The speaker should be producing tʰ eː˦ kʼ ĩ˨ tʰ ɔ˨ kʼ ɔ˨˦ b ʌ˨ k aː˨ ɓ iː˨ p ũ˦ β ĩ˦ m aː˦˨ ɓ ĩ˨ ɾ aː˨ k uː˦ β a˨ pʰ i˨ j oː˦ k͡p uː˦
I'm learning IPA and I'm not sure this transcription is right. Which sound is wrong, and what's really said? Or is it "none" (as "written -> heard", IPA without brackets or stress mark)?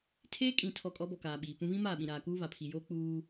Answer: ʌ˨ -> ɔ˨